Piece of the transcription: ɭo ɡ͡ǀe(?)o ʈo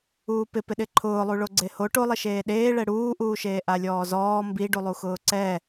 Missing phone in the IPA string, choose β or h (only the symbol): h